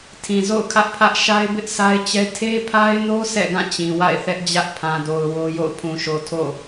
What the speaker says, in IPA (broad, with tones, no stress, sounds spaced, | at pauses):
tʰ ĩ˨ z o̰˦˨ ʊ̯ kʰ ä˦ ʔ pʰ ä˦ ʔ ʃ a˦ ɪ̯ b ɪ˦ ʔ sʰ a˦ ɪ̯ t͡ɕ ɛ˦ tʰ e˦ pʰ a˦ ɪ̯ n o˦ s ɛ̰˦˨ ɡ ã˦˨ t͡ɕ ĩ˨ w a̰˦˨ ɪ̯ θ ɛ˦ ʔ d͡ʑ ä˦ ʔ pʰ ã˨ d o˨ ʊ̯ w o˦ j o̰˦˨ ʊ̯ pʰ ũ˨ ʃ o˨ tʰ o̰˦˨